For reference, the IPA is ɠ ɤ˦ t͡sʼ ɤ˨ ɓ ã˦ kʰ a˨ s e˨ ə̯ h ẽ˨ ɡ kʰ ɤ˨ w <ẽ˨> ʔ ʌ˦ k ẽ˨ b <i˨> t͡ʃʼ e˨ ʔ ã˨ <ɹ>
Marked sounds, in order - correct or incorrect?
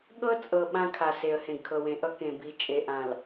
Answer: correct, correct, incorrect

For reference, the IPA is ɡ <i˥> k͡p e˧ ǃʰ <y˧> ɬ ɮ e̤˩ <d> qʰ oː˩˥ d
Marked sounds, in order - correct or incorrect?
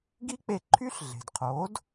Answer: correct, incorrect, correct

